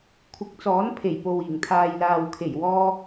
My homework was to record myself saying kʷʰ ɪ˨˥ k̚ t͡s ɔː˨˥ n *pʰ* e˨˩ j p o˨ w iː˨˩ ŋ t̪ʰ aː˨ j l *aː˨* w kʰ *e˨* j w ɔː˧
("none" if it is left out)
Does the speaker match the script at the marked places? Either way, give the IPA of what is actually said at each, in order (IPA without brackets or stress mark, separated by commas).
pʰ, aː˨, e˨˩